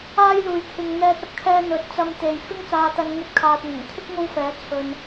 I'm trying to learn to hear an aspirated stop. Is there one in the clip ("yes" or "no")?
yes